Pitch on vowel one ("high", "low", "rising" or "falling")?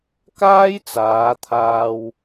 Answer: high